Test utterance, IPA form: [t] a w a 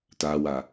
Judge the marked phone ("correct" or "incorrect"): correct